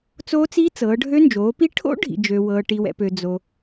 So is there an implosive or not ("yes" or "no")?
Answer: no